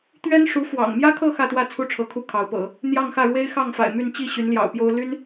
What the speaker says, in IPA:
t̪ ɥ ɛ˥ n ʂ u˧˥ f w ɑ̰˨˩ ŋ m j ä˥ kʰ ɤ˥˧ x ä˥˧ t̪ w ä˥˩ t͡sʰ u˥ ʈ͡ʂʰ ɤ˧˥ kʰ u˥˩ kʰ ɑ˧˥ ʊ̯ p ɤ̰˨˩˦ | n̪ j ɑ˥˧ ŋ x ä˥˩ ɻ w e˥ ɪ̯ x ɑ˥˩ ŋ f a̰˨˩ ɪ̯ m y˥˧ n t͡ɕ i˥˩ ɕ y˧˥ n l j ɑ̰˨˩ ʊ̯ p j o˥ ʊ̯ l y˥ n

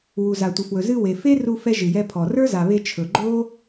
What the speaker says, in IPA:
w u˩ z a˩ tʷ ɪ˩ f w ɵ˩ z ɨ˧ w e˩ f e˥ r u˧ f ɛ˧ ʒ ɨ˩ j ɛ˧ pʰ ɔ˩ r ə˞˥ z a˩ β e˧ t͡ʃʰ ɵ˩ ɡ͡ǃ o˥

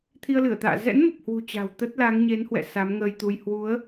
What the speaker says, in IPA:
t̪ʰ i˧ ə̯ l ɨ˧˩ ə̯ t̪ a̰ː˧˨ z ɛ̰˧˥ n m ə˨˩ p̚ h w ṳ˨˩ t͡ɕ a̤˨˩ w t̪ ə˦˥ t̚ l a˨˦ ŋ ɲ e˨˦ n h w ɛ̰˧˨ s a˨˦ m ŋ əː˧ j t̪ u˧ j h w u˨˦ ə̯

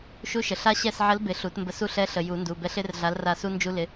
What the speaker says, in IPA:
ʃ u˧˥ ʃ ə˩ ɬ a˥ ɕ ɛ˦˨ s ʕ ə˧˥ l b ɪ˨˩˦ ɬ u˨˩˦ t m b ə˧˥ s u˦˨ ɬ ɛ˧˥ ɬ ə˩ j u˨˩˦ n d u˩˧˩ b ɛ˧˥ ɬ ɪ˧˥ r ɮ a˧˥ l r a˦˨ s u˥ n d͡ʒ u˥ l ɪ˧˥

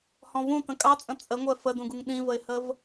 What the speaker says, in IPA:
h ɔ̃ v ũ t ə̃ kʼ ɑ t͡sʼ ə̃ t͡sʼ ə ŋʷ ɛ f ə d ũ ɡ u ŋ ɗ ĩ v ə ɪ̯ h ə v

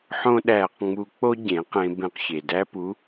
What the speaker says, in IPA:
ħ õ˥ ɗ æː˧ q ŋ͡m u˧ k͡p o˥ ɟ ẽ˩˧ q ẽ˧ b ẽ˧ q ç e˩ d æ˥ p u˧˥

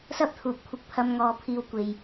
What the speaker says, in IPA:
s ɐ˥ p̚ t̪ʰ uː˨ p̚ kʷʰ ɪ˧ k̚ pʰ ɐ˧ m ŋ ɔː˨˧ pʰ iː˨ w kʷ e˨ j

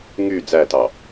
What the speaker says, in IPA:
ŋ y d͡z æ t ɑ

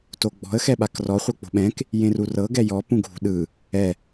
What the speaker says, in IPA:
t o ɡ͡b ɔ̤ ə̯ x ɛ ɓ a k r ɔ χʷ ɤ k͡p o̤ ɓ ɛ̃ k | j ẽ r u r ɤ ɡ ɛ j ɔ p ũ ɡʱ ṳ ɗ ɯ | ɛ

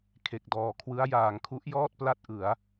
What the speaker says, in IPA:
kʰ e˨˩ k̚ d ɔː˩˦ kʰ w ɯ˦˥ a̯ j aː˩˦ ŋ kʰ u˦˥ ʔ j ɔː˥˩ t̚ p l a˥˩ t̚ ʔ ɯ˩˦ a̯

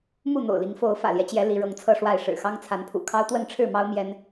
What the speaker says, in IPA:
m u˥˨ n̪ o̰˨˩ ʊ̯ l i˨˦ ŋ f o˨˦ ʊ̯ f ä̰˨˩ l j ɛ˦ t͡ɕ j ɛ˨˦ l i˨˦ ɻ ɤ˨˦ ŋ t͡sʰ ɤ˥˨ ʂ w a˥˨ ɪ̯ ʂ ɻ̩˨˩ x ɑ˦ ŋ t͡sʰ a˨˦ n pʰ ṵ˨˩ kʰ ɑ˦ ʊ̯ t̪ w ə˥˨ n ʈ͡ʂʰ ɻ̩˥˨ m ɑ˦ ʊ̯ m j ɛ˦ n

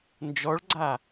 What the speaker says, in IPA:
n d͡ʒ ɔ ɭ ɡ͡ǀ a

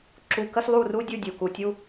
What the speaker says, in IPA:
ǁ u˧ k ə˥ s lˠ u˥˧ r u˥ dʲ u˥˧ dʲ u˧˩ k u˧ tʲ u˥

